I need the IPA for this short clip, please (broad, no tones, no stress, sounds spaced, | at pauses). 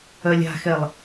œ lʲ a̤ x ɛ lˠ